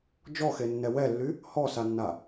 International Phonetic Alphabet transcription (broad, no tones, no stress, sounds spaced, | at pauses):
d͡ʒ ɔ x e nː ɛ w ɛ lː y | h ɔ s a nː a